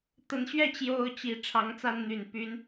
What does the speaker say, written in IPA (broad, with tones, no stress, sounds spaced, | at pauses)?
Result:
t̪ ə˨˦ n ɕ ɥ ɛ˥˨ t͡ɕ j o˦ ʊ̯ t͡ɕ i˨˦ ʈ͡ʂʰ ɑ˨˦ ŋ t͡s a˦ n n̪ y˨˩ n p y˨˦ n